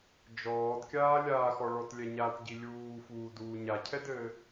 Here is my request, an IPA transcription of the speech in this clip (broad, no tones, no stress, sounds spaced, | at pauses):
d͡ʒ ɔː d kʲ aː lʲ aː x ɔ ɭ ɔ t lʲ ɛ ɲ a t ɟ i lʲ uː f uː d uː ɲ a cʰ ɛ d ɘː